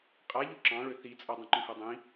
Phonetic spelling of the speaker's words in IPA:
qʼaʎo ǁɑ̃ɭø θit͡sʼʌ dˤĩǃũhɜdˤĩ

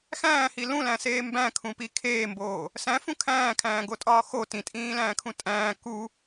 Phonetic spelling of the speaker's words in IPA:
xæ̃ːhi lũlæ̃seː mbæ̃kʰũpi kʰeːmboː | sæ̃fũ kʰæ̃ːkʰæ̃ːɡotʼɒː xo tĩtʼĩːlæ̃ːkʰũ tʼæ̃ː ku

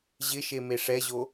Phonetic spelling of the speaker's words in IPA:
ʑɪʃe meʂɛʑo

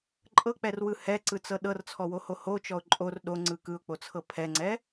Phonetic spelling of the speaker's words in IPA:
ǃʼɤk͡pɛrwɯ hɛǀɯt͡sɤ ɗɤrt͡sʰɔwoho hot͡ʃɔʊ̯ ǃʼor ɗoŋ͡ǀɯ kɯʊ̯k͡pot͡sʰɤ pʰɛŋ͡ǀɛ

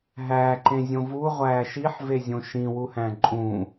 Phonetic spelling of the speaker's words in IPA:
ɦæːǃẽzʲõ vuʁʷæː ʃiħvezʲõ ʃĩwuhæ̃ ǃʼũ

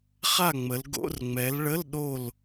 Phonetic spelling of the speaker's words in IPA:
χa˥˨ŋ͡mə˨˦l ɡo̰˧˥˧rŋ͡mɛ˨˦lɭə˧˥˧l ɗo˥˨l

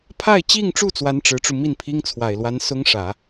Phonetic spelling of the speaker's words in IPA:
pʰa˥˧ɪ̯t͡ɕi˥˧ŋʈ͡ʂu˥˩ t͡swa˥nʈ͡ʂɻ̩˧˥ʈ͡ʂu˧ mi˥˩npʰi˥ŋt͡sʰwa˨˩ɪ̯lwa˧˥n sʊ˥ŋʂä˨˩˦

